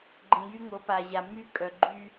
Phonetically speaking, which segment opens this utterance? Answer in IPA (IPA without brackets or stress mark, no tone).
ɡ͡ǃ